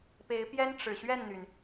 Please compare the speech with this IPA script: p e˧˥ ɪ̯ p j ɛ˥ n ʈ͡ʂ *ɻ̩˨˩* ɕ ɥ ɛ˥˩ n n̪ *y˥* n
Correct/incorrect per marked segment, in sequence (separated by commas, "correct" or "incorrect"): correct, incorrect